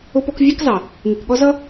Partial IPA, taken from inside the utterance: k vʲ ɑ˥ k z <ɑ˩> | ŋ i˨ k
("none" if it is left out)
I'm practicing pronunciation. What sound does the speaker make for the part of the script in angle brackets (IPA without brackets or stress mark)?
ɑ˩